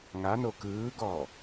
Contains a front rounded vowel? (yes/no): no